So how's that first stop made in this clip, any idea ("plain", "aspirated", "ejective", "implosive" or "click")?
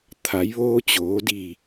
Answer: aspirated